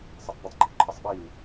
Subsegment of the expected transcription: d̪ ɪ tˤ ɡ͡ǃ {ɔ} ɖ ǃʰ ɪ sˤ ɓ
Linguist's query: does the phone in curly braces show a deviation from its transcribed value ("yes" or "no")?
no